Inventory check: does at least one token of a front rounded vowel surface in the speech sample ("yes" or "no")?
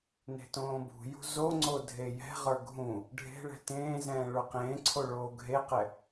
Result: no